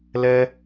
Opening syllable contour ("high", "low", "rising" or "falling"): high